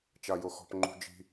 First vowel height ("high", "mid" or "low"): low